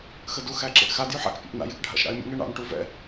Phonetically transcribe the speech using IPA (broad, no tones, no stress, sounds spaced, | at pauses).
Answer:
x ə d u x æ ǁ ḛ ʔ x a d j y ħ a̰ k pʲ ɑ̰ ʔ n a̰ j e k ɖʱ a̰ ʃ ɾ ɑ̰ ɪ̯ mʲ ə̰ ŋ ɛ ɳ ɑ̰ n ʈ u v ɛ̰